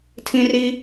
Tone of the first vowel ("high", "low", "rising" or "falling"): high